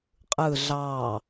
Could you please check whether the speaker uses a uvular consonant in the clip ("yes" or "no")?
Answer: yes